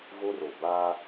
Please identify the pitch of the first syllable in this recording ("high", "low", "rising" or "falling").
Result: high